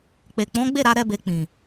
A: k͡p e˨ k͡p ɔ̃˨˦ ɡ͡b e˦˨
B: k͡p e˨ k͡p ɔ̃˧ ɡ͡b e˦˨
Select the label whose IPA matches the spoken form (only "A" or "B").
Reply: A